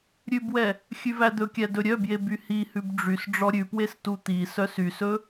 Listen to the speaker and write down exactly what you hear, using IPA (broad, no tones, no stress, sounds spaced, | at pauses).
ɾʲ ʉ b w ɛ | xʲ ʉ v æ d̪ ɵ kʲ æ d ɵ ɾʲ œ b j e b y h i h ʉ b ɖ͡ʐ y s ɖ͡ʐ ɔ ɾʲ ʉ p w e s t u t̪ i s œ s y s ɵ